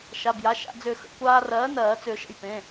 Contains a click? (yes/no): no